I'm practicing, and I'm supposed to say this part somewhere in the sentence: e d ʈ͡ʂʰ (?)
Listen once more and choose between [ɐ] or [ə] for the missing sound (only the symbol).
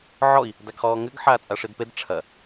ɐ